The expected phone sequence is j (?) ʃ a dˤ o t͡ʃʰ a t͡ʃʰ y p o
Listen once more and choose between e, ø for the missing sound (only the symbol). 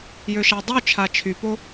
ø